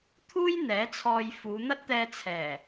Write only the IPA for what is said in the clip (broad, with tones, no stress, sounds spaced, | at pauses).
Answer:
t̪ʰ uː˥ j n̪ ɛː˨˥ t͡sʰ ɔː˧ j f uː˨˧ n̪ ɐ˥ t̚ t̪ ɛː˧ t͡sʰ ɛː˨˩